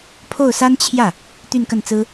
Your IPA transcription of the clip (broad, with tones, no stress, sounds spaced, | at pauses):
pʰ o˥˩ ʊ̯ s a˥ n t͡ɕʰ j ä˥˩ | t̪ y˥˧ n k ə˥˩ n t͡s ɹ̩˥